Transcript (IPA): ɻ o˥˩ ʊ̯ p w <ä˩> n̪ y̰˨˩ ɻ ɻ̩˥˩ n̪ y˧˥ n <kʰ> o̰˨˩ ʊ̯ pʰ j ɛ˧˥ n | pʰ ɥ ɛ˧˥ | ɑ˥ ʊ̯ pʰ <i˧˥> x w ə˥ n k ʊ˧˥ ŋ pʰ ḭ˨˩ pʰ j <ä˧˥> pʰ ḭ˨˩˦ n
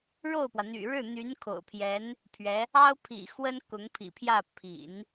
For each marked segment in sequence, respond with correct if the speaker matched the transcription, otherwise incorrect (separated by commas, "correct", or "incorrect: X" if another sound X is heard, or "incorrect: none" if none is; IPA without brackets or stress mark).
correct, correct, incorrect: ḭ˨˩, incorrect: ä˥˩